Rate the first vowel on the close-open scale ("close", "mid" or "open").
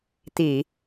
close